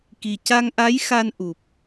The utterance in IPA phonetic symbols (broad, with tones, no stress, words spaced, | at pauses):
ki˨˩ ca˧ŋʔa˧˥j xa˧nʔu˨˩p̚